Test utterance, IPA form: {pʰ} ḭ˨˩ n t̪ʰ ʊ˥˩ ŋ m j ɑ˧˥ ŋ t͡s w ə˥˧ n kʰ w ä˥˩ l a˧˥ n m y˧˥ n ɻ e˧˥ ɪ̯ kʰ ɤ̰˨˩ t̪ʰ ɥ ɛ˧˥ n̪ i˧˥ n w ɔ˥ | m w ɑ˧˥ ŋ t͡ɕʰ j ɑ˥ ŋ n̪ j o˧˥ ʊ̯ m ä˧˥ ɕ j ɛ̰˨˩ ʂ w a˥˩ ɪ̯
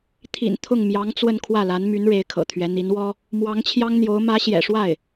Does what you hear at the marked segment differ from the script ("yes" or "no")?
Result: yes